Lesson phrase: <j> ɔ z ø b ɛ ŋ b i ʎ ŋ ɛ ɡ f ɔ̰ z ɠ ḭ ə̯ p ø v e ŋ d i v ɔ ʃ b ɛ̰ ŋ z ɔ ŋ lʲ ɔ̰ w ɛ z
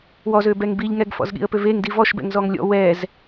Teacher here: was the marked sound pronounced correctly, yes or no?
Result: no